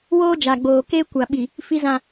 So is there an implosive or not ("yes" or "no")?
yes